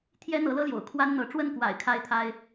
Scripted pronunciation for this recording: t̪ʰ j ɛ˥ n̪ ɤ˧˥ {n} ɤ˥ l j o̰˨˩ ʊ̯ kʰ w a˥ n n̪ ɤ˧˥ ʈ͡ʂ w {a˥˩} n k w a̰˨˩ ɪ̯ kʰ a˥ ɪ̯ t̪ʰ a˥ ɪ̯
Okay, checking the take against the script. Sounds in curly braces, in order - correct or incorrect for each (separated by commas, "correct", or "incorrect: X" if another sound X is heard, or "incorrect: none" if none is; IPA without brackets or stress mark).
incorrect: l, incorrect: ə˥˩